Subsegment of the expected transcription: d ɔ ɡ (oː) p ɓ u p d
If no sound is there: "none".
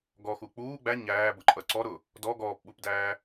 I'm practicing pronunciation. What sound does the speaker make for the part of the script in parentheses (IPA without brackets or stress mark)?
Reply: ɔː